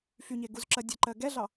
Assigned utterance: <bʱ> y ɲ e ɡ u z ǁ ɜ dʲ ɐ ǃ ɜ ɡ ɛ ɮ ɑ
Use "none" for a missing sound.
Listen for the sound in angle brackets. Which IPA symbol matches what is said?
f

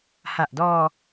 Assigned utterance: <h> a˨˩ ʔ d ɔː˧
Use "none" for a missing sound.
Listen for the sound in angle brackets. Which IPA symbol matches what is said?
h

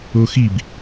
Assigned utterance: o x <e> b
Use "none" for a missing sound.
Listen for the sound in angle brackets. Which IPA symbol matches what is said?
i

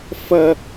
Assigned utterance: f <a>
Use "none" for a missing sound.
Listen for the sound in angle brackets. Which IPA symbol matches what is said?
ɐ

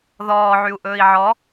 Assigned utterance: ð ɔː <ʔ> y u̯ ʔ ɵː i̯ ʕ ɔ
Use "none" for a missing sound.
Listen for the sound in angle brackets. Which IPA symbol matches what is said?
ʕ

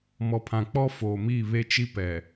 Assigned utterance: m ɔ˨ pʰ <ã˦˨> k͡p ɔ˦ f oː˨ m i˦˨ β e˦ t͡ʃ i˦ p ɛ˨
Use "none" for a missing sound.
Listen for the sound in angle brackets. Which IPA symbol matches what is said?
ã˨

